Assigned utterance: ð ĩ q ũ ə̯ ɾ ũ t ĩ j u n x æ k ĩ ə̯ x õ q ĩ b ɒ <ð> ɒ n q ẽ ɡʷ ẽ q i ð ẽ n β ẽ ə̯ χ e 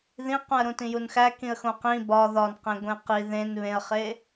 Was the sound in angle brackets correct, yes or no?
yes